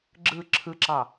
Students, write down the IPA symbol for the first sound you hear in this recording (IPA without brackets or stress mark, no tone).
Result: ɡ͡ǁ